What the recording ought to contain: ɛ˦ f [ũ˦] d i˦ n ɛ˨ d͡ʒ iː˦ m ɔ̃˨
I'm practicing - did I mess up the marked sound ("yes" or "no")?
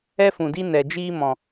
yes